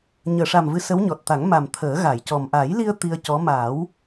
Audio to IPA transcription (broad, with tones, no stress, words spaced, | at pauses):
ɲəː˨˩˨ʂa˨˩m vɨ˧sə˧˥wɲɔ˨˩t̚ t̪a˨˩˦ŋma˨˩m t̪ʰəː˨˩˦ɣa˨˩˨jcɔ˨˩m ʔa˨˩˦jli˧ə̯ t̪i˧ə̯cɔ˧˥ ma˨˩˦w